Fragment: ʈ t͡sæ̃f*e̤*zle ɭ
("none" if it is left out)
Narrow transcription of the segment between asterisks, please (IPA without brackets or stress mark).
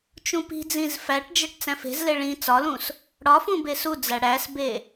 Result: e̤